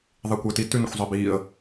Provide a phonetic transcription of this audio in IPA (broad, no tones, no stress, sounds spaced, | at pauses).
ðˤ i kʷ əː t i t ʉ n ə̰ xʷ zˤ ɛ b iː ə̯